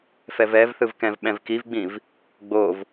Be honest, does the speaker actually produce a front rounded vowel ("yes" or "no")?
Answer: no